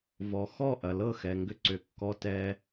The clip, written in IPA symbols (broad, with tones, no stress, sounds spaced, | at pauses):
v ɔ˩ x ɔ˥˩ ʔ ɐ˩ l ɤ˥˩ x ɛ˩ ŋ ɡ ʏ˧ ǀ ʏ˩ kː ɔ˧ t ɛ˧